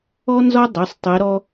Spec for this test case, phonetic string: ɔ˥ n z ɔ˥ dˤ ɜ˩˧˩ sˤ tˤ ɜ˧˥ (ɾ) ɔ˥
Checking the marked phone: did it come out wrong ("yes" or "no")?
no